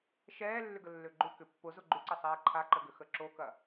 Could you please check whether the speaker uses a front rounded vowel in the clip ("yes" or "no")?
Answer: yes